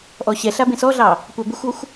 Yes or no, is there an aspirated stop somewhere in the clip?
no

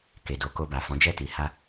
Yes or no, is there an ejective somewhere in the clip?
no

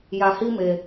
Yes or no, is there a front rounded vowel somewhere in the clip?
no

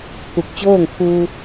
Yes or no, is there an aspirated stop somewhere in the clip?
yes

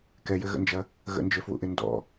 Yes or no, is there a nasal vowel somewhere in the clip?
no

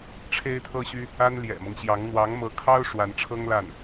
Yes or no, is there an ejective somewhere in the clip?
no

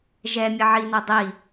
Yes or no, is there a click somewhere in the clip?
no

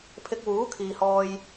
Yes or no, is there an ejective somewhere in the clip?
no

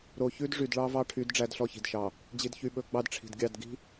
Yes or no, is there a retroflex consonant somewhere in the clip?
yes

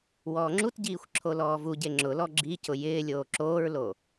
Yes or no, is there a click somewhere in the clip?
yes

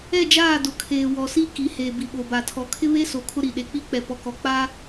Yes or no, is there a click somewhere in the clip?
no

